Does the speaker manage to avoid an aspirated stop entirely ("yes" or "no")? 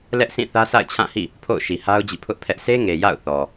no